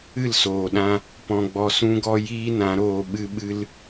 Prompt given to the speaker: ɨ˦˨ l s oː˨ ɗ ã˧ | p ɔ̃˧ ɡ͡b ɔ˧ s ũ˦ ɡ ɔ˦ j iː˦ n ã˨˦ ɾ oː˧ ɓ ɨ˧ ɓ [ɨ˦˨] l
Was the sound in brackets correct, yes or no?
no